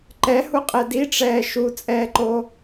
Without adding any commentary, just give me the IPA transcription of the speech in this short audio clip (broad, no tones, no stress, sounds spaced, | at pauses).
ǃ ɛ h u qʼ ɛ d i ʈ͡ʂ ɛː ʃ u t͡sʼ ɛː ǃ o